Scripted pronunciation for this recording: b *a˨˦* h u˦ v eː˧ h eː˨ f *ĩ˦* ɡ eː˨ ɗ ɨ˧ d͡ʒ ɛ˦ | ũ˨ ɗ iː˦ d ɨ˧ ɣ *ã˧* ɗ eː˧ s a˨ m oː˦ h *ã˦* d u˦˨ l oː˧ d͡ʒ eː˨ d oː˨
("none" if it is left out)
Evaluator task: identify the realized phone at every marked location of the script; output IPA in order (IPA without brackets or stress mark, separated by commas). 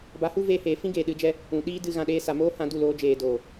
a˨˦, ĩ˦, ã˨, ã˧